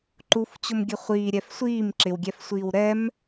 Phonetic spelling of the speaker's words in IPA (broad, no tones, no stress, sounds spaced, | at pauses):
ǃ u f t͡ɕ ʊ m ɡʲ ə χʷ iː ɾʲ ɛ f sʷ iː m ǁ ɪ w ɡʲ ɛ f sʷ iː w ɾ ɛ m